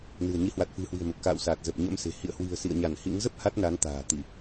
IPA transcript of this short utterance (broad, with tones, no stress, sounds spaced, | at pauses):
n ɨ̤˨˩ ə̯ ɲ i˨˦ h w a˨˩ t̚ f ɨ̤˨˩ h w i̤˨˩ ə̯ m ə˨˩ p̚ k a̰ː˧˨ w s aː˨˩ t̚ z ə˨˩ p̚ ɲ ə̰˧˥ m s e̤˨˩ h ḭ˧˨ ə̯ h w i̤˨˩ ə̯ s ḭ˧˨ ə̯ ɲ a˧˩ n h ḭ˧˥ ŋ z ə˦˥ p̚ h a˦˥ t̚ n a˨˦ n t̪ a̤ː˨˩ t̪ i˧˩˨